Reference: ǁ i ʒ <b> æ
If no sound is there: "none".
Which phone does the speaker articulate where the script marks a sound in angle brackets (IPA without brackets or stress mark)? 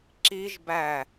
b